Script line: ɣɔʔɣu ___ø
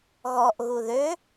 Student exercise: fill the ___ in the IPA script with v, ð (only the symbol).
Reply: ð